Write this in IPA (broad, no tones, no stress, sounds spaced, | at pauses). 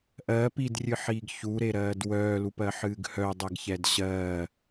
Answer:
ʔ ɜː p i d rʲ ɨ ħ iː ɡ ç u ɾ e ɾ ɜː d w œː l u p ɜ ħ ɨː ɡ h œ dˤ ɛ ɡ ç ɛ d ɕ ɜː